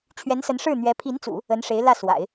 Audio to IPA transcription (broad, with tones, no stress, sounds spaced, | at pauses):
t͡ɕʰ ɥ ɛ˧˥ n s ə˧˥ n ʂ ɻ̩˥˩ n̪ ɥ ɛ˧˥ pʰ i˧˥ n t͡s ṵ˨˩˦ | ə˧˥ n ʂ e˧˥ ɪ̯ l ä˥˩ s w a̰˨˩˦ ɪ̯